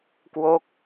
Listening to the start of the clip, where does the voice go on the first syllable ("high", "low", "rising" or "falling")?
falling